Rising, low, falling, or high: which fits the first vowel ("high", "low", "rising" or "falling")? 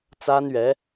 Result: high